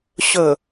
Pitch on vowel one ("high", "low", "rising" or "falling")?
low